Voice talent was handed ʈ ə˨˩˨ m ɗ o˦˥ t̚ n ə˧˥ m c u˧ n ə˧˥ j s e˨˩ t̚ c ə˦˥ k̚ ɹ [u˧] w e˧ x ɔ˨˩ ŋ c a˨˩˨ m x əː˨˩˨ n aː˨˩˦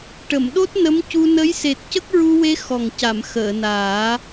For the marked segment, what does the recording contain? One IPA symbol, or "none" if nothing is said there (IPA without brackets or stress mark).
u˧